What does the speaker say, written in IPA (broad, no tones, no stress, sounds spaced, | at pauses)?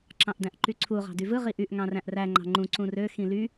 ǁ ɑ̃ ʔ d æ̃ ʔ ǃ y ǀʰ u ʁ ɑ̤ d y v ɯ ʁ i ʔ y ʔ ŋ ɑ̃ r æ̃ ʔ r æ ŋ͡ǃ ɑ̤ ŋ͡ǃ ũ ǀ ũ r ø x ĩ l y